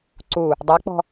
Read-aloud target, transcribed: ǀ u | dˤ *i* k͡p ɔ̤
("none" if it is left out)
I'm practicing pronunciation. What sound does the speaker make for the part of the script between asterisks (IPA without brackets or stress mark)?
e